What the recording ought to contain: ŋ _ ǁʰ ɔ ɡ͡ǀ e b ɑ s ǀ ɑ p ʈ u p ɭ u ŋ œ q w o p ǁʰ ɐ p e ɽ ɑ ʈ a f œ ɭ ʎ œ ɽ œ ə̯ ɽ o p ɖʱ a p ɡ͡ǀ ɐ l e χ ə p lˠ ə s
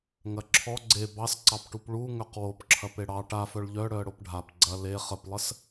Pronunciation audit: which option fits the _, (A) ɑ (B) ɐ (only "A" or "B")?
B